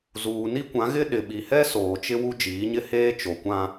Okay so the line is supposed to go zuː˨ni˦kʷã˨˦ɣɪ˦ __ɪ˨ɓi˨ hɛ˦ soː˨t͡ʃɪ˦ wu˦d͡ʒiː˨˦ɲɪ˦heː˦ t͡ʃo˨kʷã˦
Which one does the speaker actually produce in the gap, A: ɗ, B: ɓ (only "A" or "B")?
A